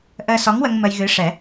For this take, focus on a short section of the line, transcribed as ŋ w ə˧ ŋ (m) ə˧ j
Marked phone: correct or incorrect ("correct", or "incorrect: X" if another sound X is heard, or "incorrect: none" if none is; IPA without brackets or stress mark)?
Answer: correct